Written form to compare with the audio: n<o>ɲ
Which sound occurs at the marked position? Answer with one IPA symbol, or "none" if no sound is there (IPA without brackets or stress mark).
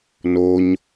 o